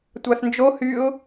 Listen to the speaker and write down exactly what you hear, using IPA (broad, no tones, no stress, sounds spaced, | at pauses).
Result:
tʷ ɑ θ n d͡ʒ o h y ʊ̯